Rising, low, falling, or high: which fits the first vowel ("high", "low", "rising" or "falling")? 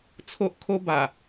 high